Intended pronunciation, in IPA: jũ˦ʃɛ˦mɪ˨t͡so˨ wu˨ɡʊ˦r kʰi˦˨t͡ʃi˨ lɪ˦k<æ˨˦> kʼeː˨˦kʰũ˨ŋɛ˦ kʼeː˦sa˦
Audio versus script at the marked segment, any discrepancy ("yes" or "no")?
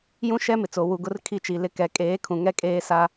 yes